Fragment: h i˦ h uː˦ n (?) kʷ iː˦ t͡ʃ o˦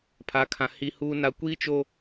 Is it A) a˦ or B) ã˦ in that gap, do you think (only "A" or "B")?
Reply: A